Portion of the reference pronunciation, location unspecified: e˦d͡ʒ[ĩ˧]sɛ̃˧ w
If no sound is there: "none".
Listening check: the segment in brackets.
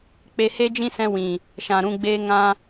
ĩ˦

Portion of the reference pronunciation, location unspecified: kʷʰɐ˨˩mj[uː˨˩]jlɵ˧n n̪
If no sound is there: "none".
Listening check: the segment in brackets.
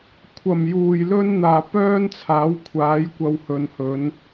uː˨˩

